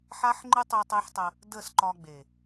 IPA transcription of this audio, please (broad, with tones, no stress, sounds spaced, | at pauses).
ħ a˦ ħ ŋ͡ǃ ɨ˦ tˤ ɨ˧ tˤ e˦ ħ tˤ ə˧ | d ə˦˨ s ǃ ɒ˧ ɡ͡b e˨